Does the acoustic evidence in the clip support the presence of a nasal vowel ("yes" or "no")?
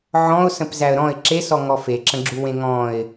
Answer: yes